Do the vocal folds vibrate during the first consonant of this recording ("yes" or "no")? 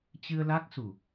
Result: no